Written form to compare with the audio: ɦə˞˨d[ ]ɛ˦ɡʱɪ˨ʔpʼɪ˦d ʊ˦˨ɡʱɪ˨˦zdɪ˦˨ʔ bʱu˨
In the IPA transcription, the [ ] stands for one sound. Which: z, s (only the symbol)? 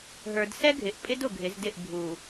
s